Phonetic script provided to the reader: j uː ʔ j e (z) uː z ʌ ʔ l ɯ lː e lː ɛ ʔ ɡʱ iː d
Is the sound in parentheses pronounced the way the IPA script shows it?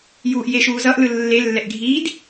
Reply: no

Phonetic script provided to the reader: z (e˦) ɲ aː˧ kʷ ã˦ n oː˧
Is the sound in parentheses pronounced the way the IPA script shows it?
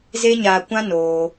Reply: yes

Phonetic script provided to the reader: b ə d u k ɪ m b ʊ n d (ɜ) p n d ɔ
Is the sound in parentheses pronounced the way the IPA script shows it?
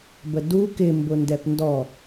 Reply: no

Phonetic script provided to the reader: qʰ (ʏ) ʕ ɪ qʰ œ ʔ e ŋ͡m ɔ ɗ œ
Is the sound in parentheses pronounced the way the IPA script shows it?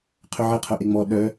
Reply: yes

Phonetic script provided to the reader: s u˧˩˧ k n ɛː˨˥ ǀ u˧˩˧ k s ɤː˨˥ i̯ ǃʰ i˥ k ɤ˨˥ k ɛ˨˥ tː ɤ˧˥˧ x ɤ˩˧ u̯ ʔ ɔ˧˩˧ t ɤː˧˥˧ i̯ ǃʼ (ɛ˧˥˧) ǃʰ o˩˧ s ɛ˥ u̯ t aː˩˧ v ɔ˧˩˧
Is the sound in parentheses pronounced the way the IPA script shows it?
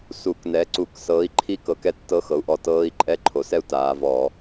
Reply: yes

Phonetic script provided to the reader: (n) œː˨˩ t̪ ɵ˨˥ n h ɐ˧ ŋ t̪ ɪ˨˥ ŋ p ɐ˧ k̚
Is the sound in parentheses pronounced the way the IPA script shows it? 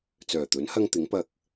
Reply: no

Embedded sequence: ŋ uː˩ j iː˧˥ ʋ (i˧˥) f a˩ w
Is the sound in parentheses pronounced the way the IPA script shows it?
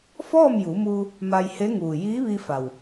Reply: no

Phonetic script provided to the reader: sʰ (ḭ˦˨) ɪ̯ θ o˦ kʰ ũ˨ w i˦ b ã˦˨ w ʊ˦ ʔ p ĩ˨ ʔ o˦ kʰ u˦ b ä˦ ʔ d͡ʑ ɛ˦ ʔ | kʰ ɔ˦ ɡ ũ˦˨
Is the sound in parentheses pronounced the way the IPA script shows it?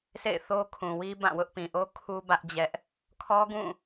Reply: no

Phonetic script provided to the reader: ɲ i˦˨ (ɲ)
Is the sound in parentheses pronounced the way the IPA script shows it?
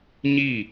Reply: no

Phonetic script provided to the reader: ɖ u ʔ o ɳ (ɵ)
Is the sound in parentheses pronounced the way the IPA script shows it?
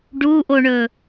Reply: yes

